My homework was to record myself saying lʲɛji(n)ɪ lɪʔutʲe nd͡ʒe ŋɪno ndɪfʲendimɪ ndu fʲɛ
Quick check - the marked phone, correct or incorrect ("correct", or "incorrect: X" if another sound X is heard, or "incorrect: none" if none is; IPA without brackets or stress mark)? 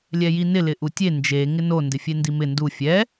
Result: correct